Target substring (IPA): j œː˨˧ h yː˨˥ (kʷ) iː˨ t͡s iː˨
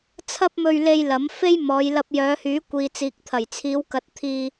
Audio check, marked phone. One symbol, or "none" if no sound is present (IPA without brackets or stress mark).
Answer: kʷ